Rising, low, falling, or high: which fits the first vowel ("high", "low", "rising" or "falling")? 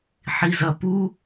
low